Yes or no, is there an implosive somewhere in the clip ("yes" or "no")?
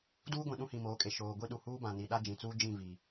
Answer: yes